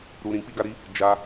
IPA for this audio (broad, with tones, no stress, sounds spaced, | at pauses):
ɾ u˧ ɾ ĩ˧ k͡p i˦ ɡ a˦ ɾ i˦ | d͡ʒ a˧